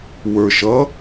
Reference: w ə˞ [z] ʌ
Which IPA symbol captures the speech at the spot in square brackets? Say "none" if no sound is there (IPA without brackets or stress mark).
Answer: ʃ